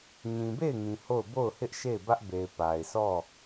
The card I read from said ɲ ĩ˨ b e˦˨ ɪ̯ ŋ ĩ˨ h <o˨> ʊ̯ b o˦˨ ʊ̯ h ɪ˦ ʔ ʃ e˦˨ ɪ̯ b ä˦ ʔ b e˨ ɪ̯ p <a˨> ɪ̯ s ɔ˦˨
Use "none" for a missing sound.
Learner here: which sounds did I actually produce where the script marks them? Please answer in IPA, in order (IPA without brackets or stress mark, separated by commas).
o˦˨, a˨